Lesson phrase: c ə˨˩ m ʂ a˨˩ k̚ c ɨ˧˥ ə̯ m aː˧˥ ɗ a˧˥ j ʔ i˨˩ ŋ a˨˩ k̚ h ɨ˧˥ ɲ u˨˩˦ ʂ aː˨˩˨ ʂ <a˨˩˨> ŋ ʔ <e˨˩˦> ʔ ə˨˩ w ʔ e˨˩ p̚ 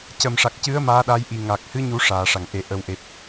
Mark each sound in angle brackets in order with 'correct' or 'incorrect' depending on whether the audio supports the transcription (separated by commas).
correct, correct